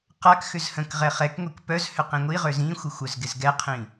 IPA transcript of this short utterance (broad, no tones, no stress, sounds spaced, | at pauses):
q a k x ʏ z h ə̃ k ʁ ɛ χ ɛ k ŋʷ i k p œ z h ʏ q ĩ ŋʷ i ʁ ø z ĩ xʷ ɪ xʷ œ z ɡ ɪ z ɡ ɛ qʰ ĩ